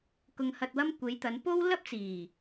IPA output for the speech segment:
k ʊ˧ ŋ h ɐ˧ t̚ w ɐ˥ m kʷ e˨˧ j t̪ ɐ˨˧ n p o˥ w l ɐ˥ p̚ t͡s iː˨˩

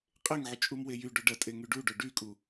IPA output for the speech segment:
qʼ e ŋ ʕ y t͡ʃʼ u m w e j y ɖ o ɖ ɐ tʼ e ŋ y ɖ u ɖ o ɖ y kʼ u

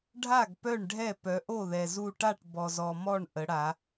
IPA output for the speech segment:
ɖʱ a˥˩ ɡ p œ˥˩ ɳ ɖʱ ɛ˥˩ p œ˩˧ ʔ o˥˩ ð ɛ˩ z u˧˩ ʈ a˥˩ ʈ b ɔ˩ z ɔ˩ m ɔ˥˩ ɳ ʔ ə˩˧ ɽ a˩˧

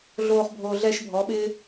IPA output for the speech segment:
ɮ oː˧ χ bʱ oː˨ ɮ ɛː˧ ʃ bʱ ɔ˨˦ ɓ ɪː˦

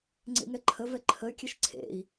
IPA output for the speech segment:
ŋ͡ǀ ḛ ŋ ɛ ǃʰ ə v ɛ ǃʰ ə y̯ kʲ ɘ ʃ ǀʰ ḛ i̯

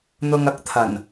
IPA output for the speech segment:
n̪ ʊ˨ ŋ ɐ˨˥ k̚ t̪ʰ ɐ˨˩ n

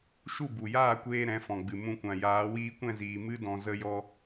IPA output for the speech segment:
ʃ u˦˨ b u˨ j aː˦˨ kʷ eː˧ ɾ ɛ̃˨˦ f ɔ̃˨ ɡ͡b ɨ˨ m ũ˧ kʷ ã˨ j aː˨˦ w iː˧ kʷ ɛ̃˦˨ z iː˨ m ɨ˦ d ɔ̃˧ z ə˧ j ɔ˧

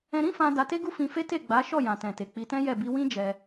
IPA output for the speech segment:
ɛ̃˧ ɾ ĩ˦ f ã˧ d a˧ t e˦ ɡ u˦ f ĩ˧ f e˦ t e˦˨ ɡ͡b a˨˦ ʃ ɔ˦˨ j ã˨ t ɛ̃˨ t e˨ k͡p i˧ t ɛ̃˦ j ɛ˦˨ b i˧ w ĩ˦ d͡ʒ ɛ˧

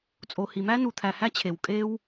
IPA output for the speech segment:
t͡sʼ o˩ h i˩ m æ˥ n u˩ t̪ʰ æ˩ h æ˥ t͡ɕʰ e˩ w kʼ e˥ w

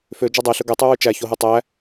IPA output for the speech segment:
f ø d͡ʒ ɔ dˤ e ɬ ɵ ɡ ɛ tˤ ʉ w ʉ t͡ʃ æ ç o ɦ u tˤ æ

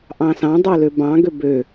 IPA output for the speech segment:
ʔ ɑ̃ s ɑ̃ dˤ o l ø b ɑ̃ ɡ ø b ø

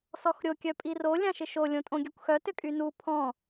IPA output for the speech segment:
s ɔ x ɾʲ o kʲ œ pʼ i r o lʲ ã ʃ ɪ ʃ o lʲ õ tʼ õ ɡʲ œ kʷ x œ t ʏ kʼ y n u pʰ ɔ̃

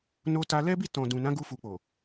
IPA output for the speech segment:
n o˧ t a˧ l ɛ˦ b i˦˨ t ɔ̃˨ d ũ˨ n ã˨˦ ɡ u˦ f u˧ k͡p o˨

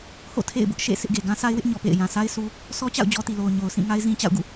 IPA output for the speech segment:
h o̰˦˨ tʰ ḛ˦˨ ɪ̯ b ʊ˦ ʔ ʃ ḛ˦˨ sʰ ɪ˦ ʔ ɡ e˨ ɡ ã˦ s a˦ ɪ̯ w ɪ˦ ʔ ɲ ɔ˨ p ḛ˦˨ ɪ̯ j ã˨ s a˦ ɪ̯ s u˦ | s ɔ˦ t͡ɕ a̰˦˨ ʊ̯ d͡ʑ ɔ˦ t i˨ l o˨ ʊ̯ ɲ o˨ ʊ̯ s ĩ˦˨ ŋ a˦ ɪ̯ z ĩ˦ t͡ɕ a̰˦˨ ʊ̯ ɡ ṵ˦˨

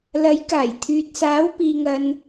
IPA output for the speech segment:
l ɐ˨˥ j k aː˨˩ j t̪ʰ yː˨ t̚ s aː˨˥ w p iː˨ ŋ ɐ˨ n

